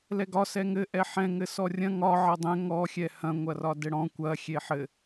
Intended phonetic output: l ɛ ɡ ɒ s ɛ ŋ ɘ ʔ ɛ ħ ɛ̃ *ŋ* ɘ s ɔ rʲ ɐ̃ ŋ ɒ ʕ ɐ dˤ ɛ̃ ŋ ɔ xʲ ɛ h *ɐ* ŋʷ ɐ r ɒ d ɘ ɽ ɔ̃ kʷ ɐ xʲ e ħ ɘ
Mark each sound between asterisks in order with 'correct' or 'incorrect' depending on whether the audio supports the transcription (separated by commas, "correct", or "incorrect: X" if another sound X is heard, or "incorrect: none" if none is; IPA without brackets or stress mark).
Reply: correct, incorrect: ɐ̃